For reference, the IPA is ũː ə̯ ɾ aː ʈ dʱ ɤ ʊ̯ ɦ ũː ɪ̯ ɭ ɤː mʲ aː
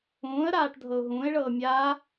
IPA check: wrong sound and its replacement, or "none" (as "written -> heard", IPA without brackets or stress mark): none